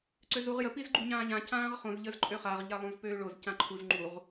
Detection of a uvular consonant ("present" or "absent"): present